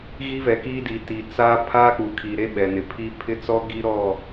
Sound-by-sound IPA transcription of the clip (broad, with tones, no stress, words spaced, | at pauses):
ɣi˦vɛ˨kiː˦di˨ ti˨ t͡sa˦ pʰaː˦k͡pu˨kʰi˨ ɾe˦ɓɛ˨nɪ˨pʰiː˦ pʰɪ˦t͡sɔ˦ɡi˦ ɾɔ˦˨